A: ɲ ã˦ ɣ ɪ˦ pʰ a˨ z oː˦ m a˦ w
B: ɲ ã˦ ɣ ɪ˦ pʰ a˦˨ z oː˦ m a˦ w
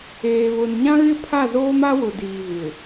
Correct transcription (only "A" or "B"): B